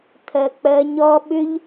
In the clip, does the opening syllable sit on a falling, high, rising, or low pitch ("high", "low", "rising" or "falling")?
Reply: low